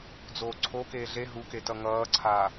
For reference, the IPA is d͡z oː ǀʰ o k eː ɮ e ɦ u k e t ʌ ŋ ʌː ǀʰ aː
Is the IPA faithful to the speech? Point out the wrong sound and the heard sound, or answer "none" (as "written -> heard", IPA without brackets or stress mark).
none